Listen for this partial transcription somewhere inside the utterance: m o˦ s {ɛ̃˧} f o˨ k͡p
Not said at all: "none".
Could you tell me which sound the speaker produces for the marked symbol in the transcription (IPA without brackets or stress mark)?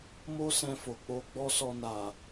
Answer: ɛ̃˧